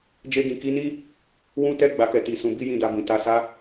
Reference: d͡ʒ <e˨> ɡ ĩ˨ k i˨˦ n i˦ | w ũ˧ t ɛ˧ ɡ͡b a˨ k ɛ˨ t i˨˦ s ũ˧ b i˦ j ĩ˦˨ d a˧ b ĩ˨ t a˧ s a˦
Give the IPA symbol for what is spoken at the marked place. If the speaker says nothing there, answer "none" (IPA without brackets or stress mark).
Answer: e˧